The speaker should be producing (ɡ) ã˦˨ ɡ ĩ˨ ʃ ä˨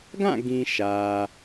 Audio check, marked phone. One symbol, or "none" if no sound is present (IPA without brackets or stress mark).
ɡ